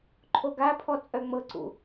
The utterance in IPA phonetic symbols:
ǃʰoɡapʰɔ t͡sʼœŋ͡mɤǀṵ

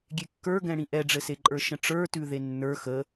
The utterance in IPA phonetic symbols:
ɡʲekːə˞ɡɛ̃ɽĩ ʔɛɖ͡ʐɘseǃʼə˞ ʃə̃ʈ͡ʂə˞tʉ ðenːə˞ xə

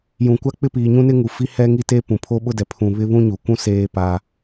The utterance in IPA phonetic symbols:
jũ˨kʷa˦k͡pɪ˦piː˨ ɲũ˦nɪ˦ŋu˨fi˦ hɛ˦ŋi˦te˦ pũ˨pʰo˦ɓʊ˦dɛ˨ pʰũ˨βɪ˦βũ˦ ɲu˨ kʷũ˦ seː˦pa˦

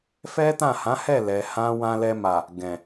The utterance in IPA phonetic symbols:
fɛ˦tã˦˨ hã˨˦hɛ˦˨lɛ˨ hã˧ wã˧lɛ˧ma˨ | ɡɛ̃˨

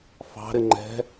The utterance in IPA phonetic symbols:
fɑ̤ɾɪ ŋ͡ǃɛ̤

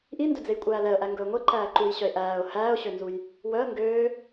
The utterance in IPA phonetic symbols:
ʔindɵd͡zejkʷʼæː lɛə̯ʔæŋɡɵə̯ ŋʷeǃæːǃuːjɕœɪ̯ ʔæːʊ̯ hæːʊ̯ɕønzuj | wœə̯ ŋɡøː

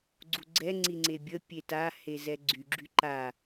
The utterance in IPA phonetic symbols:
ɡ͡ǀuɡ͡ǀɛ ŋ͡ǀiŋ͡ǀebʲə pʲeta hezɛɡ͡ǀy ɡ͡ǁyǃa

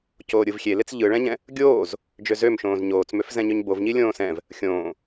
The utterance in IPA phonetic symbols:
coːɾʲɯvxʲe let͡sʎɯɭɛ̃ɲɛ̃ | ɡʲoːz | d͡ʒøzømʃõːz ɲoːt͡smøf zɛ̃ɲøɲbov ɲilʲõːsɛ̃v | xʲõː

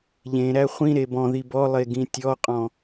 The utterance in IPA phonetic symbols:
ʎẽɾæ χʷĩɾe bɔ̃ði bɔlˠeɡĩ tʲɔqʼɔ̃

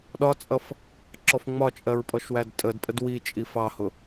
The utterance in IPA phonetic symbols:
ɗɒt͡sʼʌf | ǁɔfŋ͡mɒt͡ʃʼɜɹ pʼɔʃwædtʼədpʼəd wit͡ʃʼif ɑhʊ

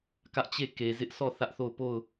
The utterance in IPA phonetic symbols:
kä˦ʔt͡ɕe˦˨ ke˨zɪ˦ʔ sɔ˦˨ θä˦ʔθo˦˨ʊ̯ po˦˨ʊ̯

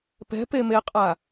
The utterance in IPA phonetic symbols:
pɛ̤pemeqʼa

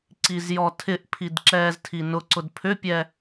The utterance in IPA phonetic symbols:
ǀizjɔtʰɪʔpʰid ǁɛːztʰinʊǀʊd pʰʏpʲɛ

